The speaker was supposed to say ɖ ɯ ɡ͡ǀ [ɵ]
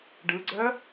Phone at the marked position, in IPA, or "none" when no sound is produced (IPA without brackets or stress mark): œ